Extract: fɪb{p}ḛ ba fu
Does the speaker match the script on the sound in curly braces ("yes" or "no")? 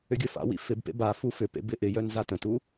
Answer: yes